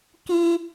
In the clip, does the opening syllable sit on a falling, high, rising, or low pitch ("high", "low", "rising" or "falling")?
high